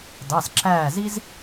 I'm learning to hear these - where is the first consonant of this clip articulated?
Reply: tongue tip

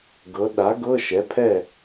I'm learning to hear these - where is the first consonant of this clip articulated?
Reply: velum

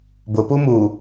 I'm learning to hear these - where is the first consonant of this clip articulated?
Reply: lips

